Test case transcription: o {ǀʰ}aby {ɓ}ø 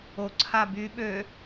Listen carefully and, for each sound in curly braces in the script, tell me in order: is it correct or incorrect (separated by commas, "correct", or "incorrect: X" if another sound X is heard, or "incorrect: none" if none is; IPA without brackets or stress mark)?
correct, correct